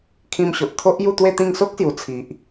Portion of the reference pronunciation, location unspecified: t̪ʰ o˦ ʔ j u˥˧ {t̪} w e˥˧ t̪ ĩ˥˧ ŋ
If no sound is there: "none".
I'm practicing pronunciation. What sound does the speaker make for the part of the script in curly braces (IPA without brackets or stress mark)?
t̪